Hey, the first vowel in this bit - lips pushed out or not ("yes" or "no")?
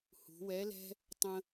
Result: yes